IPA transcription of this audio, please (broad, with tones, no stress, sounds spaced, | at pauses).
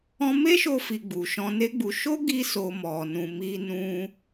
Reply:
ɔ̃˧ m e˦ ʃ o˧ f i˨ ɡ͡b u˨ ʃ ɔ̃˧ n e˦ ɡ͡b u˧ ʃ o˦ ɡ i˧ s o˨ m ɔ˨ n ũ˨ m i˧ n ũ˧